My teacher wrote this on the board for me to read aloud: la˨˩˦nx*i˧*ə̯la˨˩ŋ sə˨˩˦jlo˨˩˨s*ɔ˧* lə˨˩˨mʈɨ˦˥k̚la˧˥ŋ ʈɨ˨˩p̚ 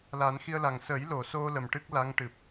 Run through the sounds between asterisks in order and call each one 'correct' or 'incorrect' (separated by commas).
correct, incorrect